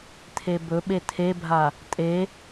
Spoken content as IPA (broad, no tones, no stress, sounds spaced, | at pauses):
tʰ e b ɵ ɓ e tʰ e bʱ a | tʼ e